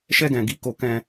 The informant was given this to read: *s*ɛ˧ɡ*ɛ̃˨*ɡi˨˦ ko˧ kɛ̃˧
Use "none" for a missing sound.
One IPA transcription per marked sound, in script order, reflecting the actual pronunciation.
ʃ, ɛ̃˨

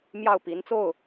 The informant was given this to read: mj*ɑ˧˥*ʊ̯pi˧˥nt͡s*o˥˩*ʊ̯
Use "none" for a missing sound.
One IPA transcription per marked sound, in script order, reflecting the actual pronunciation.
ɑ˥˩, o˥˩

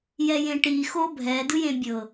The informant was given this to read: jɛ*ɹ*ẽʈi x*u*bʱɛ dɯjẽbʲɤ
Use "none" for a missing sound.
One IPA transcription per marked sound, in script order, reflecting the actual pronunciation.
j, o

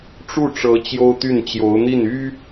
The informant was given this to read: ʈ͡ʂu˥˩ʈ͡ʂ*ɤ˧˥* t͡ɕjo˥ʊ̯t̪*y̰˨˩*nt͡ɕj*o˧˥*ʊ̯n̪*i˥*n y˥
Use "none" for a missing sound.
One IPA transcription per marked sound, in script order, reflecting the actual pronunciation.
ɤ˧˥, y˥˩, o˧˥, i˥˩

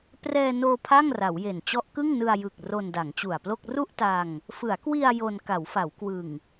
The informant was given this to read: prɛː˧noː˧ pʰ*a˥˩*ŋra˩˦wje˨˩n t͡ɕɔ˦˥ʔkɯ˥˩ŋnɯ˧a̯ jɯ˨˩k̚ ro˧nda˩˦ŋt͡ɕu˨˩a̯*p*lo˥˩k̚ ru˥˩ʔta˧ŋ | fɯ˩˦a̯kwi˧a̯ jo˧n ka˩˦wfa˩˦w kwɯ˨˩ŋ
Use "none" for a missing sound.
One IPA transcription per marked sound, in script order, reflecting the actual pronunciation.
a˥˩, p

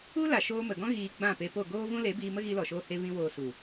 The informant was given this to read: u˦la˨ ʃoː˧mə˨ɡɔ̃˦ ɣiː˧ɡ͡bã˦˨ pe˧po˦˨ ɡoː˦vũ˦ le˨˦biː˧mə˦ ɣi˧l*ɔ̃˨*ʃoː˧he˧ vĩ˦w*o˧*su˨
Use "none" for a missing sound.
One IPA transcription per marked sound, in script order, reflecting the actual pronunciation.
ɔ˨, oː˧

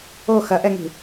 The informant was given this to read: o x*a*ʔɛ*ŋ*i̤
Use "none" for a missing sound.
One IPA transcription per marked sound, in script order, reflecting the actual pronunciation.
ɐ, ŋ

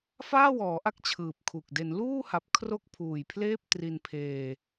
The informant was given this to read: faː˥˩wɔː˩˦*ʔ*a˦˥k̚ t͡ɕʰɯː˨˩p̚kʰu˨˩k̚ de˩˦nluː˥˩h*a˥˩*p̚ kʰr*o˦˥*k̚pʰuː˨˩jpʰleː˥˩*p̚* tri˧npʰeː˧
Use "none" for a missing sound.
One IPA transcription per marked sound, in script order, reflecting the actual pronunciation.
ʔ, a˨˩, o˥˩, p̚

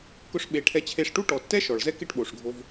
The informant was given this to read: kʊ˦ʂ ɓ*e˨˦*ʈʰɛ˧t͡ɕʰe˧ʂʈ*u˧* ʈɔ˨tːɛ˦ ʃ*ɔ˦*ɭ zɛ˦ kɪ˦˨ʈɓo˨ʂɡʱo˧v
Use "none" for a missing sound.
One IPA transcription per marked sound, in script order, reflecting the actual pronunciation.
e˨˦, u˦, ɔ˨

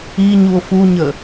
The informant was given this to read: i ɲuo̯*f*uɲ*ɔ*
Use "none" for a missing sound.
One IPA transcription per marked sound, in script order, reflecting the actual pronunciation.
f, ə

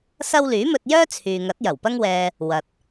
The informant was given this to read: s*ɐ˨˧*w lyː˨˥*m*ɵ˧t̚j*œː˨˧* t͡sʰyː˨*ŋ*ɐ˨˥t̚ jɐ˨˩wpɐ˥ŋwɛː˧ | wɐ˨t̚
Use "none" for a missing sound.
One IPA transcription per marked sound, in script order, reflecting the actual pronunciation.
ɐ˥, m, œː˥, ŋ

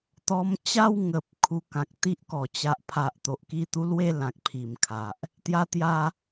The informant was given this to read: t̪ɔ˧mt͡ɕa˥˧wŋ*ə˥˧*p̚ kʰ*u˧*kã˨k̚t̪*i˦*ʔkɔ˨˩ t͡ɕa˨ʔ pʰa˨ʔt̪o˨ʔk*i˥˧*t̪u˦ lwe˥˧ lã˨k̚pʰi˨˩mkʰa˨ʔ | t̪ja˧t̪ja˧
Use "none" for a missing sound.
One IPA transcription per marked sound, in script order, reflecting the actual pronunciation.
ə˨, u˧, i˦, i˥˧

